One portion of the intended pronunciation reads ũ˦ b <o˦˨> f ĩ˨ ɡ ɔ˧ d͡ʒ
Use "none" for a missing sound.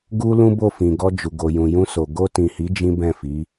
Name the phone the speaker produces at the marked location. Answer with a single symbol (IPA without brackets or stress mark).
o˦˨